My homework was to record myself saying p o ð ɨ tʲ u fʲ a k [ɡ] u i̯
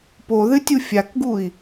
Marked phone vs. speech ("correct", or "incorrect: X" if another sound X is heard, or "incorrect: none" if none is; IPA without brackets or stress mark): correct